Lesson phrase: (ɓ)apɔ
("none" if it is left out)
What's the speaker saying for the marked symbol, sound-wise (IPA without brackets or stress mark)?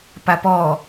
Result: p